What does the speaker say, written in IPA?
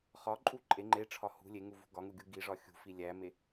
χ ɒ ǃʼ u ǃʼ e ŋ͡ǃ e ʈ͡ʂʰ ɒ h ṳ lʲ e ŋ u v ṳ ɡ ɒ ŋ u ɡʲ u ɡ i ʐ ɒ xʲ ṳ f i lʲ æ m e

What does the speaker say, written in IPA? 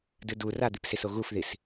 d ɨ d u r a d̪ i p s i s o ɣ u f ð i s

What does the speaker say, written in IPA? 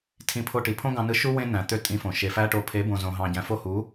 tʰ ĩ˧ pʰ o˧ ʈ i˨ pʰ õ˦ ɡ ɑ̃˧ n ɯ˧ ʃ u˦ w ẽ˦ n æ̃˨ t̪ ø˦ tʼ ĩ˧ f õ˨ ʃ e˨ f æ˦ ʈ o˧ pʰ e˨˦ b õ˨ z õ˨ ɦ ɑ̃˨ ɟ æ̃˨ f o˧ h u˨˦

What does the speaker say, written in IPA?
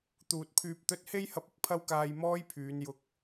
t̪ uː˨ t̚ pʰ yː˧ p̚ t̪ ɵ˥ t̚ h e˥ j h ɐ˧ p̚ ɪ˨ k̚ pʰ ɐ˥ w k aː˧ j m ɔː˥ j pʰ yː˨˧ n j ʊ˧ k̚

